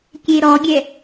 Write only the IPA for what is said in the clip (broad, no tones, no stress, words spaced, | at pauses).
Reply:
kʲeɾɔɡʲɛ